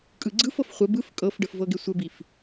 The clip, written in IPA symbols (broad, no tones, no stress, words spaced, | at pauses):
kʼɯɡ͡ǀɯfɤf χʷə bɯf kʼɤfɖəf vɤɡesʷəbif